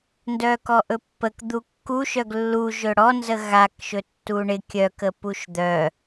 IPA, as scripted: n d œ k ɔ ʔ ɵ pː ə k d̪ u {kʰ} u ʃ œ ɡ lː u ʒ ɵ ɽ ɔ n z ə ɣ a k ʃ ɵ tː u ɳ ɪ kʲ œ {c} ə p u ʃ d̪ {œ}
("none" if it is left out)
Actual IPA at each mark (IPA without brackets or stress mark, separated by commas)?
kː, k, œ